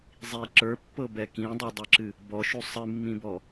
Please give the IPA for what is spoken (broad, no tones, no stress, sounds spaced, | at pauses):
zˤ i ǁ ə˞ pː ɤ b ɛ k ĩ dˤ ɤ dˤ ɨ ǁ ɨ | b ɔ ʃ u sˤ ɨ mː ĩ b ɔ